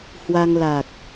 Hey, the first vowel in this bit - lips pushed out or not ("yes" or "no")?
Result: no